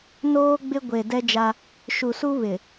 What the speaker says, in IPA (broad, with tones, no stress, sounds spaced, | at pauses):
n oː˦ ɡ͡b ɪ˦ ɡʷ e˨ d ɛ˦ d͡ʒ a˦ | ʃ u˨ s u˦ β ɪ˨